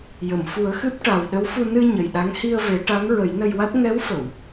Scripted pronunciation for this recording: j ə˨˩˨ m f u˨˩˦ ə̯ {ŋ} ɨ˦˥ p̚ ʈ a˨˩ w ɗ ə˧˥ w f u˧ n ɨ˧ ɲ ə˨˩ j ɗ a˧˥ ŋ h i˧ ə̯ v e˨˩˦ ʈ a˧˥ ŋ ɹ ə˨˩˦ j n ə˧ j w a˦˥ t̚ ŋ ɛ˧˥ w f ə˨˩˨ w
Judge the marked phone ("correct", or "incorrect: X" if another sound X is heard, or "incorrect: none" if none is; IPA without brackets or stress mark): incorrect: x